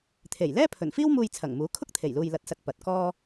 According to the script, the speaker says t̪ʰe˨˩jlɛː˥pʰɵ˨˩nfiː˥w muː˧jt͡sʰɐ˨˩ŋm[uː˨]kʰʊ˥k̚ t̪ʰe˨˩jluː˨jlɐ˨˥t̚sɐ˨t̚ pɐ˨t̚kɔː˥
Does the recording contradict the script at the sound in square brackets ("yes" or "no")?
yes